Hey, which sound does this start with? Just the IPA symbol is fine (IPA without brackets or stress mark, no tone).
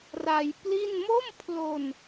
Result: r